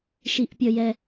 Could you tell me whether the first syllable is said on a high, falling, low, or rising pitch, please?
low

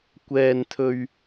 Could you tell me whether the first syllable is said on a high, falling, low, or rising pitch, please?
high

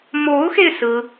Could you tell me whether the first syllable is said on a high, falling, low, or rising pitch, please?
rising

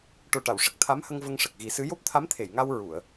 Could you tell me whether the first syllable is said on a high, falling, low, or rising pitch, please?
low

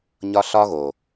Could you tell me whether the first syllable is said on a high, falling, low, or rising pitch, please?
high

